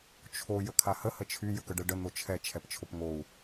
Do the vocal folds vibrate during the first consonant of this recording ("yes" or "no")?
no